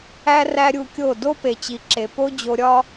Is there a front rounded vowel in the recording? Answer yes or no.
no